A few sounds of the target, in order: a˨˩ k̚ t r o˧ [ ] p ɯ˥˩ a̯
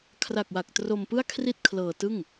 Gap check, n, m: m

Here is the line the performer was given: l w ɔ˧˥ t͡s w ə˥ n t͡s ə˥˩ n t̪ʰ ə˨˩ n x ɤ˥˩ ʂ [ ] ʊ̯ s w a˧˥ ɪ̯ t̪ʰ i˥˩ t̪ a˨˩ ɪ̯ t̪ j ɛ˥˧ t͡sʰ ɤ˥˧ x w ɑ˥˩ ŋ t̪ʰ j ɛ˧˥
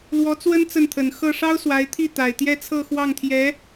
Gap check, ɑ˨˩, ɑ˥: ɑ˥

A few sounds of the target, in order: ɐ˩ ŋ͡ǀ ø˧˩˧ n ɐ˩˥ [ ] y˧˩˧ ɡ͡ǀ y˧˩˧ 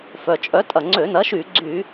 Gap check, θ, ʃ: ʃ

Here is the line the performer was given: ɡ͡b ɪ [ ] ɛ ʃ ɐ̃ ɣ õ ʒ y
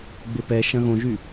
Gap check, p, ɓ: p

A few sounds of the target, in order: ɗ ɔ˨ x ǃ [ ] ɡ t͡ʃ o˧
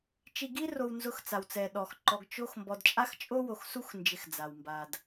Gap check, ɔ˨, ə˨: ɔ˨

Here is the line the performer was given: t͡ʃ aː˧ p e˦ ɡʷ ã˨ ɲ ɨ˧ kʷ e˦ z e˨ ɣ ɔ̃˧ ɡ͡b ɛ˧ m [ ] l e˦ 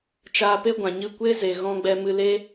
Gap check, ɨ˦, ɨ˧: ɨ˧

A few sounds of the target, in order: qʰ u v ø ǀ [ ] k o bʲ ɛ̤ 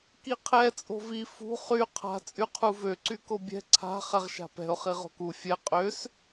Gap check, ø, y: y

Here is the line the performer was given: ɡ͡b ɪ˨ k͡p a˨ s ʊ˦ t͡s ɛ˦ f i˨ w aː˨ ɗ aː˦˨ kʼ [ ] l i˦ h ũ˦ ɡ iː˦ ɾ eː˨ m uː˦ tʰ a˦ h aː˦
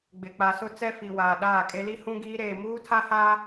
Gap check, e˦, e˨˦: e˦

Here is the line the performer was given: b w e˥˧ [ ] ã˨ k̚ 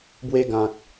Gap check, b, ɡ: ɡ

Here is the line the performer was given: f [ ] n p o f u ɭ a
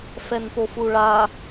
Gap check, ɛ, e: ɛ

